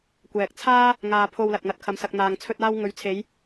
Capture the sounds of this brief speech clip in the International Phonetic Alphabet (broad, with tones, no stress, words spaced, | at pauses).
kʷɛː˨k̚t͡sʰaː˥ | ŋaː˧pʰo˧wlɐ˨t̚ŋɐ˧t̚ kʰɐ˨msɐ˨k̚ n̪aː˨ŋt͡sʰɵ˧t̚aː˧w ŋɵ˨˧ɥt͡sʰe˨˧j